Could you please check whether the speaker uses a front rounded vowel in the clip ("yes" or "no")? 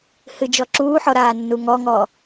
no